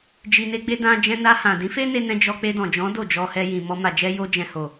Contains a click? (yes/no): no